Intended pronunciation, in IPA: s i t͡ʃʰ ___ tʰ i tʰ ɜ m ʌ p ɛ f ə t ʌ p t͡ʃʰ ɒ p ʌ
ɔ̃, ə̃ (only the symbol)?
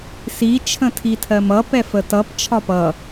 ə̃